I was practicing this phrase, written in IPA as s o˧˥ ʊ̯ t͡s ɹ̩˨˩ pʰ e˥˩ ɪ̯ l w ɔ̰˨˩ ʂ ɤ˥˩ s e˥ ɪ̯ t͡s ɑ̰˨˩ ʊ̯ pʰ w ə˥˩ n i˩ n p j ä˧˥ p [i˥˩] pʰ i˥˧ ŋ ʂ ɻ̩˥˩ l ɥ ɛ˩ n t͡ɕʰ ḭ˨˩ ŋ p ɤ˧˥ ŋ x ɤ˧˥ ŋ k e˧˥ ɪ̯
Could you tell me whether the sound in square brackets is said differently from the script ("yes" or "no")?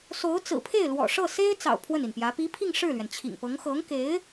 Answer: yes